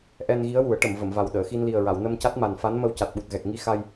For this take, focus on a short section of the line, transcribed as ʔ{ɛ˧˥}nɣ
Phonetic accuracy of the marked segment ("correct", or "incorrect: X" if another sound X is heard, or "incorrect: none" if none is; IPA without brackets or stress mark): incorrect: ɛ˧